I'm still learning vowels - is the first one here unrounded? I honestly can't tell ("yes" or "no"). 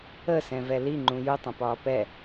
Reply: yes